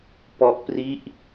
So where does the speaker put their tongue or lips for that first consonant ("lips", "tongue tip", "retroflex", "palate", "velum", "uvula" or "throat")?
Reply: lips